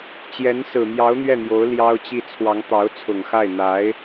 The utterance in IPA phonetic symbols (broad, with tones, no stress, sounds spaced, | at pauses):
t͡ɕ j ɛ˧˥ n s ɹ̩˨˩ m j ɑ˧˥ ʊ̯ n̪ ɥ ɛ˥˩ n̪ j o˧˥ ʊ̯ l j ɑ˥ ʊ̯ t͡ɕ i˥˩ t͡sʰ w ɑ˧˥ ŋ t̪ ɑ˧˥ ʊ̯ t͡sʰ ʊ˨˩ ŋ x a˥˩ ɪ̯ n̪ a˧˥ ɪ̯